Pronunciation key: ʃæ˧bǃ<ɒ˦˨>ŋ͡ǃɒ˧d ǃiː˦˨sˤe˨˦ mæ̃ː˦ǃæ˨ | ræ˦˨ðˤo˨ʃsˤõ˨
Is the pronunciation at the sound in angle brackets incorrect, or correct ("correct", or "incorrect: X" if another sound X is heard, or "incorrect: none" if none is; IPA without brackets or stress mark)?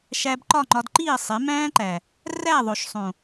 correct